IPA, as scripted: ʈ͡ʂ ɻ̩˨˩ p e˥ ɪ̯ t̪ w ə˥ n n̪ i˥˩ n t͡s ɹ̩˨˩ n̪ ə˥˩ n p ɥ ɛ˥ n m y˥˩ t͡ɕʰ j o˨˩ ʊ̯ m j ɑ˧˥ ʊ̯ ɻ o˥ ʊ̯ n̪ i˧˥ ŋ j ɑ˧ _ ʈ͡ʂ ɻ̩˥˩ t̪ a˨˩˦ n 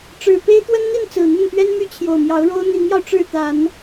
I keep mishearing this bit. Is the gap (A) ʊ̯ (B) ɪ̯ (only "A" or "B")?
A